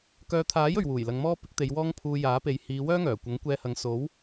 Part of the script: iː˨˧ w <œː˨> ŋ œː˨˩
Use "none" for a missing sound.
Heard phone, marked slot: œː˥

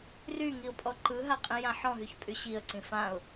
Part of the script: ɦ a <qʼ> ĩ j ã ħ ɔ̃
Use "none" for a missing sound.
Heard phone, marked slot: qʼ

